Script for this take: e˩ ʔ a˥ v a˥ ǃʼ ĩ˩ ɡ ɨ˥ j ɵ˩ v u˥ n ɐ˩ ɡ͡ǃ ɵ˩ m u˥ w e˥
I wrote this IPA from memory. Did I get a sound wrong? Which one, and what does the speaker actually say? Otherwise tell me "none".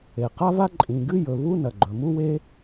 ʔ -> q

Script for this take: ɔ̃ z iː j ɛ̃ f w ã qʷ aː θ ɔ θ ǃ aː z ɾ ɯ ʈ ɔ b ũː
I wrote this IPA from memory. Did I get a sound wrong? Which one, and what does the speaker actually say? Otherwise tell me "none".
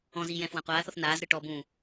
ǃ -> n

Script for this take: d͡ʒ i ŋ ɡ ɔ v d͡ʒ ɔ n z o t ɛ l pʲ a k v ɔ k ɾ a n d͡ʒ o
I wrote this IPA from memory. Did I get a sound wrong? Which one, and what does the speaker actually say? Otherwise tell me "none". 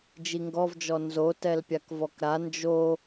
none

